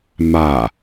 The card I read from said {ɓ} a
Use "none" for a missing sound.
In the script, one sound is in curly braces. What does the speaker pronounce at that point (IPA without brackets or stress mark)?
m